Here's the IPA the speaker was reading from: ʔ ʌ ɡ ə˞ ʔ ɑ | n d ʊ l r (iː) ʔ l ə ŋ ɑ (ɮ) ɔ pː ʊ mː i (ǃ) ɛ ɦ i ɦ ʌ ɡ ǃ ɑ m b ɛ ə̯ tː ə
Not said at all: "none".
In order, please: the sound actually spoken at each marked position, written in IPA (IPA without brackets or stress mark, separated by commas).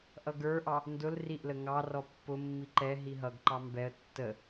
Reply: i, r, ǃ